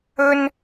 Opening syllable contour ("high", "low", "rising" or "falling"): high